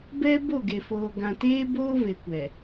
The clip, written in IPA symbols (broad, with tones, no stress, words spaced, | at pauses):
bɛ˦bo˦˨ɡe˨ foː˨ɡã˨teː˦boː˦ ve˨kʷɛ˨